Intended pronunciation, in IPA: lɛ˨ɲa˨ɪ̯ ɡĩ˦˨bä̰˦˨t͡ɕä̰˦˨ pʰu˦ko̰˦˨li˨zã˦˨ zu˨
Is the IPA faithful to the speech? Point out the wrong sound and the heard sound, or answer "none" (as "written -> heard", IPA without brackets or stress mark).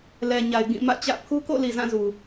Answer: b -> m